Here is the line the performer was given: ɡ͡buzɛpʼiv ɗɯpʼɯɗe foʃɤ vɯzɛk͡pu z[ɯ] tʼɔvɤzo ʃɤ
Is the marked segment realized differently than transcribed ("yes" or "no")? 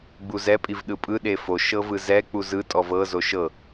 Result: no